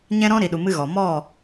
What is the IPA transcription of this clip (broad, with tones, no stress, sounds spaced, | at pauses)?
ɲ ɛ̃˦ ɾ ɔ̃˦ ɾ i˨ ɗ u˨ m ɨ˧ ɣ ɔ˨ m ɔ˦˨